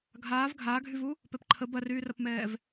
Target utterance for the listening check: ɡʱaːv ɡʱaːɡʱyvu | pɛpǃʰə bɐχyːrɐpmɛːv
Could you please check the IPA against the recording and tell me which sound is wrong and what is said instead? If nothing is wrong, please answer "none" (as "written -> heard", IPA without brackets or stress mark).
χ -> r